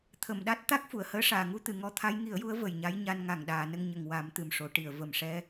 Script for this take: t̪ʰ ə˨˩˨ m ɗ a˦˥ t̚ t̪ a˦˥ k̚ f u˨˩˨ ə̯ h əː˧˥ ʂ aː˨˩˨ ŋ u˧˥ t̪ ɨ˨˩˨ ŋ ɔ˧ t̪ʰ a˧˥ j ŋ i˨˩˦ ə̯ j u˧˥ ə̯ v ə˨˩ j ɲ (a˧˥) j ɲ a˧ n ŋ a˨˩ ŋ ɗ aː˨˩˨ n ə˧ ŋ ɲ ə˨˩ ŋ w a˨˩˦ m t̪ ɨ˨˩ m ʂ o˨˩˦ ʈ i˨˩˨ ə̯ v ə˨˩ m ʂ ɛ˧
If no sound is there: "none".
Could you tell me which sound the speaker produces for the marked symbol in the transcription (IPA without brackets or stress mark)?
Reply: a˧˥